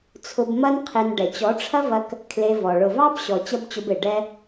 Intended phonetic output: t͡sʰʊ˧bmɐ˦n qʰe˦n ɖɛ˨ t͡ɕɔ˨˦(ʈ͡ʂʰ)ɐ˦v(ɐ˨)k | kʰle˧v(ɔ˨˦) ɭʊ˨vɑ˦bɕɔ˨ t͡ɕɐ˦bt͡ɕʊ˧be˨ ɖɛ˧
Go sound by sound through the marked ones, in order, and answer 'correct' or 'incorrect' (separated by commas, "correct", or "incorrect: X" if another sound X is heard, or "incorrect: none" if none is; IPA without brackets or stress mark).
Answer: correct, incorrect: ɐ˧, incorrect: ɔ˨